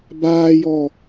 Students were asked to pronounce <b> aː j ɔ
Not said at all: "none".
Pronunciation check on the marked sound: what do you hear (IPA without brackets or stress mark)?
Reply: b